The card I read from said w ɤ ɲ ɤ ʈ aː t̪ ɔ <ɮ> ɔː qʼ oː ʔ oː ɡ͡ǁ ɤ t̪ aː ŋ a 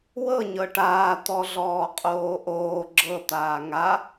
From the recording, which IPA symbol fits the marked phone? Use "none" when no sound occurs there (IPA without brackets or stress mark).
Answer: ɮ